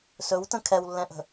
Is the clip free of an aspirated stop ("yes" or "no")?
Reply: no